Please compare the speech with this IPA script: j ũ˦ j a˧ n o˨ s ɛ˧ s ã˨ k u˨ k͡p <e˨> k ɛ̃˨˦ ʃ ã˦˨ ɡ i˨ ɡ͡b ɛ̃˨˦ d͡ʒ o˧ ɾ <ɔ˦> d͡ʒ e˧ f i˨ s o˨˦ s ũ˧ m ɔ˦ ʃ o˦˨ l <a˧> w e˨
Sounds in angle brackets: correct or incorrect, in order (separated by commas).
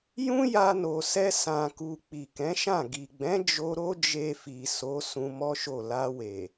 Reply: incorrect, incorrect, correct